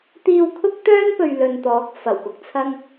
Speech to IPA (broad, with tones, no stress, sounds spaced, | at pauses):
t̪ iː˧ w kʰ ʊ˥ k̚ t̪ œː˥ n p ɵ˨ ɥ l ɵ˨ n t̪ ɔː˨˥ k̚ f ɐ˨˩ w p ʊ˧ k̚ t͡sʰ ɐ˥ ŋ